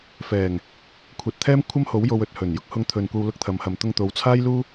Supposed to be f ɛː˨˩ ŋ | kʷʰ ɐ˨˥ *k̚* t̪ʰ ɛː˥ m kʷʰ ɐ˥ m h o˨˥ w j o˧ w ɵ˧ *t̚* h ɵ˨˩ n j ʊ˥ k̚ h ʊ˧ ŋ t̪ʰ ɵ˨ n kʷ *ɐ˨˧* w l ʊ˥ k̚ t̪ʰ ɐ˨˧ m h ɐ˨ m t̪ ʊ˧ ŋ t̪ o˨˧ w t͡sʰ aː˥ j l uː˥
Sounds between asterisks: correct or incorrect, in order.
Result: incorrect: t̚, correct, incorrect: ɐ˧

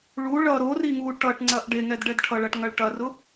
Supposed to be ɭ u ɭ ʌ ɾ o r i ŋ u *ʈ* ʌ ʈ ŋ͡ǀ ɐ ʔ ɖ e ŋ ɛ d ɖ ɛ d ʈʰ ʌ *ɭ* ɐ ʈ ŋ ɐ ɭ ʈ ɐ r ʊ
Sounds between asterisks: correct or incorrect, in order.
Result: correct, correct

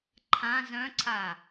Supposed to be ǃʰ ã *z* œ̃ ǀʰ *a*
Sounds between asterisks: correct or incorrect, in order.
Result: correct, correct

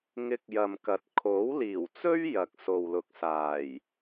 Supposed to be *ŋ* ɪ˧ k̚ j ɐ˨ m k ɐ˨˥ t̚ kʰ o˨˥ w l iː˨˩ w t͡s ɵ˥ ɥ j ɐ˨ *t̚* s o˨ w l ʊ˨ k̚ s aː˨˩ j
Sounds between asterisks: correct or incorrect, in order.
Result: correct, incorrect: k̚

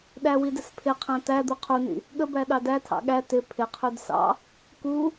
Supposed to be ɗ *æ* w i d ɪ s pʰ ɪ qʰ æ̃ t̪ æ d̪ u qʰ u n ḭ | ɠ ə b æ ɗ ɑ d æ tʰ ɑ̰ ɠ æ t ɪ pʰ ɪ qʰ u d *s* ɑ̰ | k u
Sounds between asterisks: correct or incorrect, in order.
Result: correct, correct

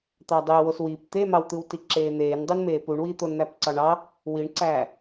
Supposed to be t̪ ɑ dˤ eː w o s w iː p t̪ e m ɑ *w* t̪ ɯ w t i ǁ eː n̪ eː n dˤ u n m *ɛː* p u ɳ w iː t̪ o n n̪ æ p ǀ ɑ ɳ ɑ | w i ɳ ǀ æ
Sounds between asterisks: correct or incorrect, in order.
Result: correct, incorrect: eː

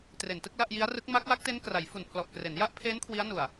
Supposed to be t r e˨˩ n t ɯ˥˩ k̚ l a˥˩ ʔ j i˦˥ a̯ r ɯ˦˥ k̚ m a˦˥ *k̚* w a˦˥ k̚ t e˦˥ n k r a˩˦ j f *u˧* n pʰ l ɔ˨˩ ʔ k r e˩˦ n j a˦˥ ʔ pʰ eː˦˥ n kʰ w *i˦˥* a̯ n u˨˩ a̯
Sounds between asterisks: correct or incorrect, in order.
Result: correct, incorrect: u˨˩, correct

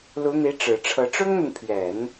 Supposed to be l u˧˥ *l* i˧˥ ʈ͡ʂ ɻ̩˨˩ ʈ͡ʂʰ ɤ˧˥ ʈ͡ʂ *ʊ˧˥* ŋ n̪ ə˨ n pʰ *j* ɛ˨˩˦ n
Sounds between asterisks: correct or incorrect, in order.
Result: incorrect: n̪, incorrect: ʊ˥, incorrect: ɥ

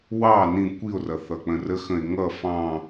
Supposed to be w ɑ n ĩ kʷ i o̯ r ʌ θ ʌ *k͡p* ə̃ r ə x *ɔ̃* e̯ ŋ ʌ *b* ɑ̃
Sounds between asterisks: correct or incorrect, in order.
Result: correct, incorrect: ə̃, incorrect: f

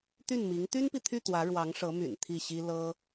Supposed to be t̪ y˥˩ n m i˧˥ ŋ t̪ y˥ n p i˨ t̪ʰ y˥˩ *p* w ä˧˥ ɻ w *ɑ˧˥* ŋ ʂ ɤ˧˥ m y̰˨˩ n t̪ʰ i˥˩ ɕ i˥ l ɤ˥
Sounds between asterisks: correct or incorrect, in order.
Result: incorrect: t̪, correct

